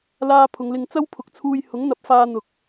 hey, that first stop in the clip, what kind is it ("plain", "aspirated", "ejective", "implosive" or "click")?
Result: aspirated